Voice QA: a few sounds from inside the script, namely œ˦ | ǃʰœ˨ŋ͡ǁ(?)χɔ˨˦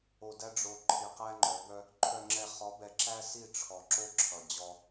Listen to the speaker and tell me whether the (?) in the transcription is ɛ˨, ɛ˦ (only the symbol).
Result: ɛ˨